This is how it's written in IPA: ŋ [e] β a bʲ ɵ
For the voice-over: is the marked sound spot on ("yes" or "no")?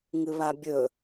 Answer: no